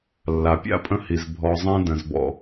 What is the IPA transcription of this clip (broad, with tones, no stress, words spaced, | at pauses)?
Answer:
lːa˩pʲa̰˥pʼə̃˦ hi˩z bʱɔ˨zˤẽ˦ də̃˩zbɔ̰˨